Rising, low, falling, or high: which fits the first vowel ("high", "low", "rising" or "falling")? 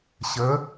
rising